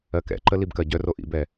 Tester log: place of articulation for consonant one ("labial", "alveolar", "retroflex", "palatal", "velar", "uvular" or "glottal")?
velar